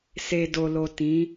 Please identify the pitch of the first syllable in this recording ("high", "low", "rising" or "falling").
low